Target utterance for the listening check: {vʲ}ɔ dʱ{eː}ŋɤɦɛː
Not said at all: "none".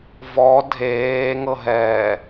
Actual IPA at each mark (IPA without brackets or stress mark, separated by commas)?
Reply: v, eː